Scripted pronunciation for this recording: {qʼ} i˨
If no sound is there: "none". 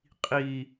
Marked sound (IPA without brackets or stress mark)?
qʼ